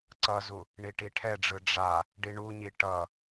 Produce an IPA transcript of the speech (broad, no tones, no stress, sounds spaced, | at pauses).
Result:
ǀ ʌ z u | ɳ i ʈ i ʈʰ ɛ ɖ͡ʐ ɯ ɖ͡ʐ a | ɖ i ɳ u ɲ i ʈ ʌ